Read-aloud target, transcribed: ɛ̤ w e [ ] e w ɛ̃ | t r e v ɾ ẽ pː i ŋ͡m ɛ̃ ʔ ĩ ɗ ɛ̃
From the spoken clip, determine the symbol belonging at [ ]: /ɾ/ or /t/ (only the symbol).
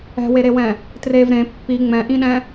ɾ